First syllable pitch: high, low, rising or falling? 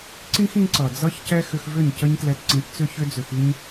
high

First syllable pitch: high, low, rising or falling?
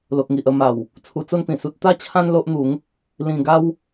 low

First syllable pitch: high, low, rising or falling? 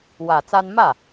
low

